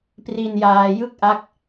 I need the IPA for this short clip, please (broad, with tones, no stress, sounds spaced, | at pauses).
p r i˧ n j aː˧ j ɯ˥˩ k̚ ʔ a˦˥ k̚